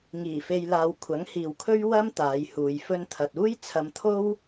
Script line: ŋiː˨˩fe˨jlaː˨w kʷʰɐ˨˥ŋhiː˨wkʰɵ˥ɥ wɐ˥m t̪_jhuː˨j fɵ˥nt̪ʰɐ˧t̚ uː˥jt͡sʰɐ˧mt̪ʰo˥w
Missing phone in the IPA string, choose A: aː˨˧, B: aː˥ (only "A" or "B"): A